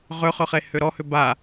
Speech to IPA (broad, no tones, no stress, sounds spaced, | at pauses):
ʁ ʏ χ ʏ χ e h ʏ ɾ ɔ h ʏ b a